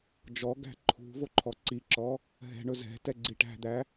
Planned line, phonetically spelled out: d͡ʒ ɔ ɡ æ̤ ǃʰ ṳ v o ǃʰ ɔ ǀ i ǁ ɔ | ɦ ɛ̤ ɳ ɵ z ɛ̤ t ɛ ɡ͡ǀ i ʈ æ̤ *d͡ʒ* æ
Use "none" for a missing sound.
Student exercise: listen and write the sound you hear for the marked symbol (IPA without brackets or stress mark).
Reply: d̪